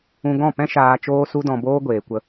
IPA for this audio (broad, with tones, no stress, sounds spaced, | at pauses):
ũ˧ ɡ ɔ̃˦˨ p ɛ̃˦ ʃ aː˧ t͡ʃ oː˦ s u˦ d ɔ̃˧ b oː˦ ɡʷ eː˨ kʷ ə˧